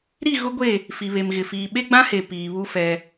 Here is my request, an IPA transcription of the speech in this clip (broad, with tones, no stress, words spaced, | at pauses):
ɾi˦˨ɣʊ˦ɡʷe˦˨ | fi˨βe˨mɣɪ˨fiː˨ ɓe˦ ɡ͡bã˦he˨ piː˨βu˦fɛ˦